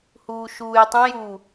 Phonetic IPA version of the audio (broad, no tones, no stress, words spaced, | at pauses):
huːʃuːjtˤɛ̃juː